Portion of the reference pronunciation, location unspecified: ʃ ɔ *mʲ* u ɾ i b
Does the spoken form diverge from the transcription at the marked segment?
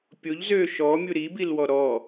no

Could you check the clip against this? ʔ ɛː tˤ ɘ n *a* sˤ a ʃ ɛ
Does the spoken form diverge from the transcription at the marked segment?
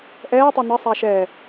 yes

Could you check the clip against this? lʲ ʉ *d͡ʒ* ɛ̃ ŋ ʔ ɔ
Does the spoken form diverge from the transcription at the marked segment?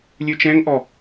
yes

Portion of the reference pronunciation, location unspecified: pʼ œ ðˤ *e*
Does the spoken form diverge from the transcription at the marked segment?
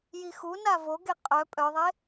no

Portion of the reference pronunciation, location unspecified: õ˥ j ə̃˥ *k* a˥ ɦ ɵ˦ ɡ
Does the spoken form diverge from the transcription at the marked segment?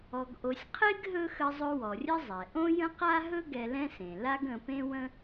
yes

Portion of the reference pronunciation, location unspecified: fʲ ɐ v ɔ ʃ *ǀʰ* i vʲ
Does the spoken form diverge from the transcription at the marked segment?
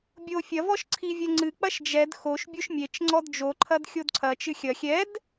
no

